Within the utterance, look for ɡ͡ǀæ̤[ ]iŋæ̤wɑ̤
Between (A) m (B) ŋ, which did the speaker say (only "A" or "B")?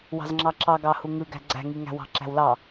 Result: B